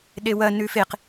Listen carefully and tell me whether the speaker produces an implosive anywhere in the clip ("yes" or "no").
yes